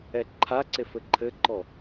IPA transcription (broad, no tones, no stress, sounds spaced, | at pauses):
ɛ ǃʰ a ǀ e f ɘ ǃʰ ɘ ǃ ɔ